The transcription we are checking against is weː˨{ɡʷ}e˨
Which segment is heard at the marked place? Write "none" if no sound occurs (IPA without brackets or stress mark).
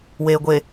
ɡʷ